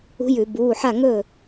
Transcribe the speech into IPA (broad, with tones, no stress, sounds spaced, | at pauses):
ṳ˧˥ j ʉ˧˩˧ b uː˩˧˩ ħ a˥˩ ŋ ɵː˥˩